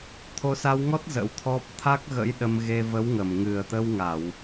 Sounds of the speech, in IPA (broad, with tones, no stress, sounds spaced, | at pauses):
t̪ʰ o˨˦ s a˧ w ŋ ɔ˦˥ t̚ z ə̰˧˥ w t̪ʰ ɔ˦˥ p̚ t̪ʰ a˦˥ k̚ ɣ ə̰˧˥ j ɗ ə˧ m ɣ e˧ v ə˨˦ w ŋ ə˧˩ m ŋ ɨ˨˩ ə̯ t̪ ə˧ w ŋ a˧˩˨ w